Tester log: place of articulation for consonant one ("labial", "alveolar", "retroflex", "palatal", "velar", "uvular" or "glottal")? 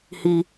glottal